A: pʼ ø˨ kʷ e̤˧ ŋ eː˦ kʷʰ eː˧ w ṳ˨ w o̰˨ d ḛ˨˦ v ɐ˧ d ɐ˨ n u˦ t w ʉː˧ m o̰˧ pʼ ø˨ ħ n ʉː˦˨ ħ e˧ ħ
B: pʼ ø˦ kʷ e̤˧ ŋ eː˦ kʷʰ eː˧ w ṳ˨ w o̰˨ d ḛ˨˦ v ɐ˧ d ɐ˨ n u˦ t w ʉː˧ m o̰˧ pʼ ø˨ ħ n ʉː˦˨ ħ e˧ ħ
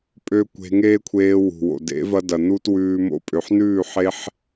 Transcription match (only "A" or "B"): B